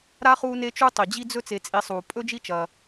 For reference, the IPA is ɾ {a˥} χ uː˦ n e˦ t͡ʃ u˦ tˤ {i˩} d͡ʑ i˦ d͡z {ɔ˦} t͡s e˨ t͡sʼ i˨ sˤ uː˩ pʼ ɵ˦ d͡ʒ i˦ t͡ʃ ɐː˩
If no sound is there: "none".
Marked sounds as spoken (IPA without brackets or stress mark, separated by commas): a˥, i˩, ɵ˦